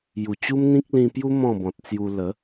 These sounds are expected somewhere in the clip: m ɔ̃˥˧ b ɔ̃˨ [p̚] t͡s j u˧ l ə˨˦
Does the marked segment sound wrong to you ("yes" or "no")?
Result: yes